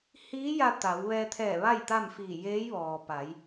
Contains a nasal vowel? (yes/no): no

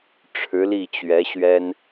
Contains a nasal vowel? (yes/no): no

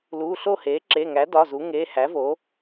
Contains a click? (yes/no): yes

